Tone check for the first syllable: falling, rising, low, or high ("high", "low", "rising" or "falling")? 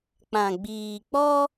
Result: low